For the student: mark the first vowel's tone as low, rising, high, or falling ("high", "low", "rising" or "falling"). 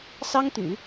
high